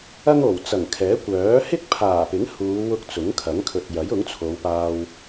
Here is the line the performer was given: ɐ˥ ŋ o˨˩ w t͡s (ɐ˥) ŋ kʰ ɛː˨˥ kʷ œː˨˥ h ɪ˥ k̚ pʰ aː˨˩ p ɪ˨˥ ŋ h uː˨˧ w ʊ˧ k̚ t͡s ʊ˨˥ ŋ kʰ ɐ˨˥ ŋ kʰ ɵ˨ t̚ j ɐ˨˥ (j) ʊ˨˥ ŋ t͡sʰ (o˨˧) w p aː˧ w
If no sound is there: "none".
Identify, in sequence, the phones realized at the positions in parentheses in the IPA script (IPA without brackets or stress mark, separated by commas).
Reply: ɐ˨˩, j, o˨˧